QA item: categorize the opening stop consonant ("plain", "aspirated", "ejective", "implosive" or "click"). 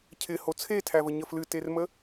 aspirated